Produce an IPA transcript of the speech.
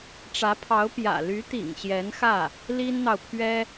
ʈ͡ʂ ä˧˥ pʰ ɑ˧˥ ʊ̯ p j ä̰˨˩ l y˧˥ t̪ ḭ˨˩ ŋ ɕ j ɛ˧˥ n x ä˥˩ | l i˥ n n̪ ɑ˨ ʊ̯ pʰ ɥ ɛ˥

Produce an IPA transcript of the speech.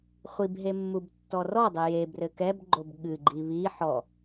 χʷ i b ɦ e mː u b tː ɔ r ɔ dˤ ɘ j e b r ɘ k ɛ b ɡ͡ǃ o b ɠ ɨ ɡ͡ǃ i β i ħ ɔ

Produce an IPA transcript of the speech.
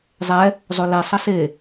zˤ ɛ | zˤ o l e sˤ ʌ s e

